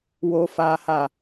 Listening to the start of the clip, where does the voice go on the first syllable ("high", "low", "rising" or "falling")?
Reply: high